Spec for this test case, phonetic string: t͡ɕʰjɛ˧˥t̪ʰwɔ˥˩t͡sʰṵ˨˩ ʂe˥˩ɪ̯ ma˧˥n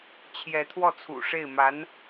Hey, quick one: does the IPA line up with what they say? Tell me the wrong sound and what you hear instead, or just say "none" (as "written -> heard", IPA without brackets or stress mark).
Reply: none